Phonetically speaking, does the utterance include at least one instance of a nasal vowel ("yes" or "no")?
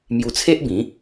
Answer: yes